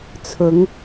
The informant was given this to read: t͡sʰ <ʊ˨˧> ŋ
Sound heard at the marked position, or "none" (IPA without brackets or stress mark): ʊ˨˧